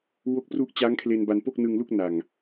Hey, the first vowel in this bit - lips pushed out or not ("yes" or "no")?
yes